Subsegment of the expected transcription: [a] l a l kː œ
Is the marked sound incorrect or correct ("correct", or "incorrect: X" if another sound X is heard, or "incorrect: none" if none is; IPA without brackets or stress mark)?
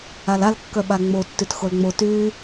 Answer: correct